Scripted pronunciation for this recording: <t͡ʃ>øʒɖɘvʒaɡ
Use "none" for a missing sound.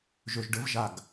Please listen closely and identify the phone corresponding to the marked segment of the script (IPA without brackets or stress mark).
ʒ